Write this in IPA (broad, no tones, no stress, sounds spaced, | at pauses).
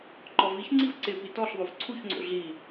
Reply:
ǃ ɔ v i ç ŋ͡ǀ i v ǀ ɪ p i t ɔ ɬ ðˤ o v ǀʰ u ç ŋ͡ǀ o̰ ɮ i